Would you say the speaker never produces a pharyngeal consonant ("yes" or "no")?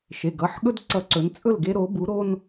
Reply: no